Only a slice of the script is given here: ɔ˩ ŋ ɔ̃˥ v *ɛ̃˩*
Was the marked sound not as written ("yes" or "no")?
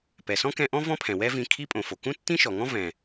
no